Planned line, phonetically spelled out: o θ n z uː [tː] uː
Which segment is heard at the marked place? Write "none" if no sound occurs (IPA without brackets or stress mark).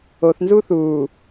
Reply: θ